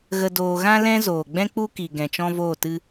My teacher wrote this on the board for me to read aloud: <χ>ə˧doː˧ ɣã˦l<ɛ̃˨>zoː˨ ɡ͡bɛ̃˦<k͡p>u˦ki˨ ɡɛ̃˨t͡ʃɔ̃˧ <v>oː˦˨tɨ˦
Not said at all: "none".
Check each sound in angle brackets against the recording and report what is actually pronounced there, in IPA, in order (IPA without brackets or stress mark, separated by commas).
ɣ, ɛ̃˦, k͡p, v